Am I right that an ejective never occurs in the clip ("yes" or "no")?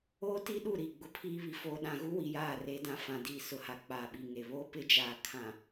yes